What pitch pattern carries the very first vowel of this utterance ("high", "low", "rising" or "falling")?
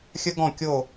high